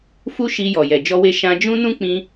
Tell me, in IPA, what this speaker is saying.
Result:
f u˦ ʃ i˧ j ɔ˨ j ɛ˨ d͡ʒ ɔ˧ w e˧ ʃ ã˧ d͡ʒ ũ˦ n ũ˦ k͡p ĩ˧

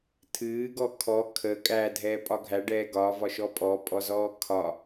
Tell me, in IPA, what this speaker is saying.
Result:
tʰ ɨː ɡ ɔ kʰ ɔ kʰ ə kʼ æ dʱ ɛː pʼ ɒ ɡʱ æ ɖ ɛː ɡ ɒ v ɒ ʃ ɔ pʼ ɔ pʼ ɔ z ɔː kʰ ɒ

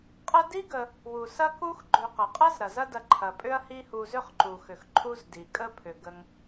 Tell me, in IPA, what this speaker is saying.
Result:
qʼ ɐ˥ d i˥ ɡ ə˨ | w u˩ s ɐ˥ k u˦ x ɡ͡ǃ ʏ˨ q ə˩ qʼ ɐ˥ z ɾ ɐ˩ z ɐ˦ d ɐ˨ ǃʰ ɐ˩ pʼ ʏ˦ ɐ̯ h i˦ h u˨ z ʏ˥ χ ǃ u˩ x ʏ˩ x ǃʰ u˦ z d i˩ kʼ ə˦ pʰ ʏ˩ ɡ ə˨ ŋ

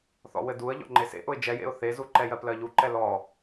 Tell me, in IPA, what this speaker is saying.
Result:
θ ɔ̰ w ɘ d u ə̯ ʎ ɔ̰ ŋ͡ǃ e s ḛ ʔ ʊ ɪ̯ d͡ʒ ɛ j ḛ ʊ̯ θ e z u ǃ ɛ j ɜ p l ɜ ʎ u ǃ ɛ l ɔ

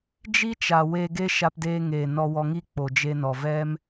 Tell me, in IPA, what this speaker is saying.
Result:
d͡ʒ i˦ t͡ʃ a˨ w eː˧ ɡ e˦ ʃ a˧ p d eː˧ ŋ eː˨ n ɔ˧ w ɔ˧ ŋ i˦ k͡p o˨ d͡ʒ e˧ n ɔ˨ v ɛ˦ m

